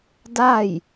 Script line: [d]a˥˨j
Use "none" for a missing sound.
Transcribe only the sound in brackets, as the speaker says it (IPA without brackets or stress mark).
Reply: d